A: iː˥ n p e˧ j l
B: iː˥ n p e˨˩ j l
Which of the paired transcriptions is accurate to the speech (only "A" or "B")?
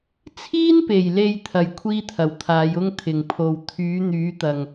B